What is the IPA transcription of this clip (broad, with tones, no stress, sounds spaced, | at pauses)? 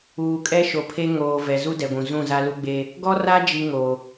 uː˨ kʼ ɛ˦ ʃ o˨ pʰ e˦ ŋ oː˨ v ɛ˨ z u˦ d ɛ˨ ɡʷ ũ˨ z ũ˦˨ z a˦ l u˦ ɡ͡b eː˦ | ɡ ɔ˦ r a˦ d͡ʒ i˦ ŋ oː˨